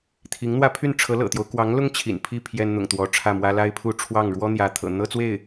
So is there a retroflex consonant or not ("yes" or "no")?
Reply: yes